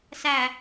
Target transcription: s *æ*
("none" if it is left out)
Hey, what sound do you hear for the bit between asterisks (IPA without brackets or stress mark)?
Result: æ